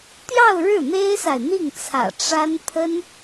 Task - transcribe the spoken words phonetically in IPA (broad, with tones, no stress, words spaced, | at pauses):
t̪jɑ˥˧ʊ̯ ɻɻ̩˥˩n̪e˥ɪ̯sa˨ɪ̯ n̪i˥˩ŋt͡sʰä̰˨˩ ʈ͡ʂa˥n pʰə˥n